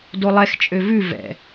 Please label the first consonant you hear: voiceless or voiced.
voiced